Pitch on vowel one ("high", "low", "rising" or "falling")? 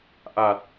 low